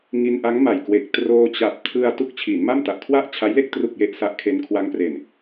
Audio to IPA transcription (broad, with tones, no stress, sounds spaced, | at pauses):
ŋ i˧ n ʔ a˦˥ ŋ m a˨˩ j k w e˨˩ k̚ t r oː˧ t͡ɕ a˨˩ p̚ tʰ ɯ˧ a̯ t u˦˥ k̚ t͡ɕʰ iː˩˦ n m a˥˩ m t a˨˩ ʔ kʰ w a˥˩ ʔ t͡ɕʰ a˦˥ j l e˥˩ k̚ t r u˨˩ k̚ j e˨˩ ʔ s a˦˥ ʔ kʰ e˦˥ n kʰ w a˦˥ ŋ p r e˨˩ n